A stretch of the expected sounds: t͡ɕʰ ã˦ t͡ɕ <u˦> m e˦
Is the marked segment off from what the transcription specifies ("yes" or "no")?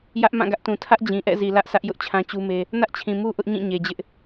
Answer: no